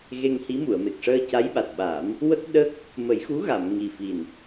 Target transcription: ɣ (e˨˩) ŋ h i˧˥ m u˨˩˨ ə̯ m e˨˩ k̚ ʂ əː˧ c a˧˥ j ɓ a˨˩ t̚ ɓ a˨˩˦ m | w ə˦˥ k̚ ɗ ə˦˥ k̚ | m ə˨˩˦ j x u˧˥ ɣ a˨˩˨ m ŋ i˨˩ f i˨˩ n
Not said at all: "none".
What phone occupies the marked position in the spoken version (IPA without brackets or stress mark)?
e˧